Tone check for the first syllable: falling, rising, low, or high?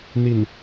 low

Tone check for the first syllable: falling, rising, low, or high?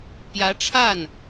rising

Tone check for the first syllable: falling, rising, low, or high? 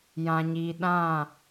low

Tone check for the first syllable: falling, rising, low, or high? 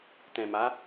low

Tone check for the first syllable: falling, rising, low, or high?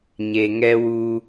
low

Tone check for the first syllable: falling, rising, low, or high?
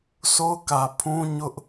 high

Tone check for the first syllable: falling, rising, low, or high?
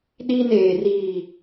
high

